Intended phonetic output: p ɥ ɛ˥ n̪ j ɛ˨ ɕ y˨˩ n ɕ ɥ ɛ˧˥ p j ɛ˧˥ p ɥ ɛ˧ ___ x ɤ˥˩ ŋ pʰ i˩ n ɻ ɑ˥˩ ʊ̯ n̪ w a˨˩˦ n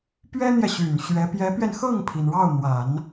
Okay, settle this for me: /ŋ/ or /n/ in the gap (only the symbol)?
n